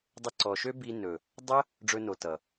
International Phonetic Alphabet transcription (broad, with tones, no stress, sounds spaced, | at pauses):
dˤ ɘ˧ ǀ ɔ˨ ʃ ø˦ b i˧ n ɵ˨ | dˤ ə˦ | ɖ͡ʐ ɵ˧ n o˨ t ʌ˨